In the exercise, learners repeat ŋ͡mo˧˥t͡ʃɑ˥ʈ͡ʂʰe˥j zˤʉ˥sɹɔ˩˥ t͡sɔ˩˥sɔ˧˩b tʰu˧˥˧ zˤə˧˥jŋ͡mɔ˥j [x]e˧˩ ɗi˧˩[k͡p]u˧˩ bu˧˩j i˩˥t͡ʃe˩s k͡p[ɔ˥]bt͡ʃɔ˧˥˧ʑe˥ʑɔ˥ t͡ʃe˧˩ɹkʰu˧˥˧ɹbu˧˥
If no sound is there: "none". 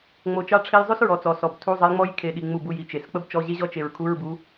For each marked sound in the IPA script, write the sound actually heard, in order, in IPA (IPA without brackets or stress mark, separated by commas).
kʰ, ŋ͡m, ə˥